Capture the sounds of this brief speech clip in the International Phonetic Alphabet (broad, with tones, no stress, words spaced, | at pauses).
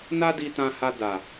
na˦di˧tã˧ha˧ da˨